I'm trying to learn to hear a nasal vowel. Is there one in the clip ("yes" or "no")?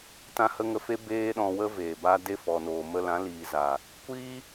yes